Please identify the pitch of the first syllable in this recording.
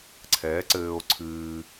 rising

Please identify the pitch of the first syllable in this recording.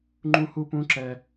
high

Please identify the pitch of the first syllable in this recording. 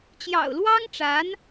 low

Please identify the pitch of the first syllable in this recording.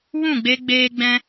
falling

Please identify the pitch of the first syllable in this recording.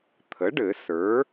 rising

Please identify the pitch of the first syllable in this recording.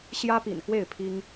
high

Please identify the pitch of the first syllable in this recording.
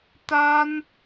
high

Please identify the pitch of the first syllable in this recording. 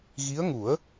rising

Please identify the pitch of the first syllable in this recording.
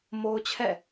high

